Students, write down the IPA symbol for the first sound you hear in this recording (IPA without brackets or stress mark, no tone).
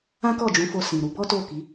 ã